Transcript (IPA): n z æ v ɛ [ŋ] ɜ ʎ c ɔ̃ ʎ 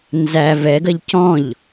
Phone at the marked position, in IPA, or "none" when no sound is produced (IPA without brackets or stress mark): ɡ